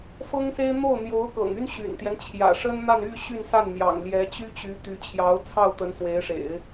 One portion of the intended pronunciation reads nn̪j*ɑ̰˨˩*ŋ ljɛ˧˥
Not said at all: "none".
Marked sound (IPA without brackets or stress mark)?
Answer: ɑ̰˨˩